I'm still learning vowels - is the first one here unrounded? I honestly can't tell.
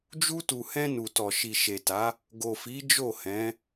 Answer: no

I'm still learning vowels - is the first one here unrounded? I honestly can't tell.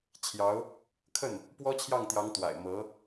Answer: yes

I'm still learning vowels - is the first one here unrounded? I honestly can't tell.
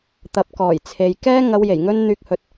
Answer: yes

